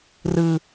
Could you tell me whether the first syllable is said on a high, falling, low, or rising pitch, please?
high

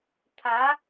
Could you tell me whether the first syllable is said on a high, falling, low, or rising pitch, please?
rising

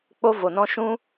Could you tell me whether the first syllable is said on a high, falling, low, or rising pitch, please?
high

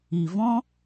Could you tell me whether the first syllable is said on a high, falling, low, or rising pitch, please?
low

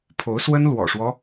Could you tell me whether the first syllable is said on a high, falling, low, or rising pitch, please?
rising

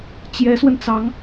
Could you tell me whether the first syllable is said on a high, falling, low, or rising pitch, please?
rising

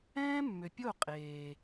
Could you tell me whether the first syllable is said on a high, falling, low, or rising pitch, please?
high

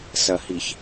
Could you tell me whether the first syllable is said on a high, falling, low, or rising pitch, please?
low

